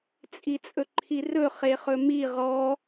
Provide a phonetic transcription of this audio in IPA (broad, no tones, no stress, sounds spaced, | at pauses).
t͡sʼ i t͡sʼ ɵ ǃʰ i r ɵ χ e χ ɵ m i ʁ ɔ